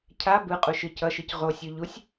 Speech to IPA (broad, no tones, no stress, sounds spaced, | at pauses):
cʰ a b ɯ qʼ u ʃ ɯ c ʌ ʃ ɯ c ʁ o sʲ o ʎ u sʲ